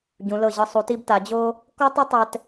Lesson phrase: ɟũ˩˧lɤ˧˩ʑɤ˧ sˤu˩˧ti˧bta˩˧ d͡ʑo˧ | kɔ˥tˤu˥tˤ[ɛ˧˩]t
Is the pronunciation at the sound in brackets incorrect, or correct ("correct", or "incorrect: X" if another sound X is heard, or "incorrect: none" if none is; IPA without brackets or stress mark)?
incorrect: ɛ˧